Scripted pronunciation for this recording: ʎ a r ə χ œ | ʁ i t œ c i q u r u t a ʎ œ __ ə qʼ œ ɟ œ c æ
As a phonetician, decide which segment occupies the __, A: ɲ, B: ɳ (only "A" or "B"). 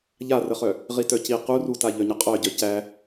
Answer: A